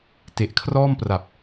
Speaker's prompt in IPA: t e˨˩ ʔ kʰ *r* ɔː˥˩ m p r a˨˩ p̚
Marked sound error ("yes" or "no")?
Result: no